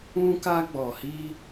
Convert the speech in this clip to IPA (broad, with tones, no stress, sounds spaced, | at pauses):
ũ˧ k a˧ ɡ͡b ɔ˨ h i˧